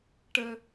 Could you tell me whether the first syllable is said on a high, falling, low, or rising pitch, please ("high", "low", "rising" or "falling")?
high